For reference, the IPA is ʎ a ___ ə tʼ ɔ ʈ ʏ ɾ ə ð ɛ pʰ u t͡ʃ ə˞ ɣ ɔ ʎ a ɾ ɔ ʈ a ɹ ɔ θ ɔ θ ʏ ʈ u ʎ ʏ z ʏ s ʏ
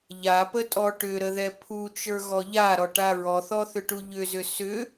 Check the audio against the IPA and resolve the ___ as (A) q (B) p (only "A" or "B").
B